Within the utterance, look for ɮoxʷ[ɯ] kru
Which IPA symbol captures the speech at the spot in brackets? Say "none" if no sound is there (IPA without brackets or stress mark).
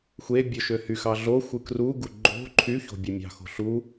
ɯ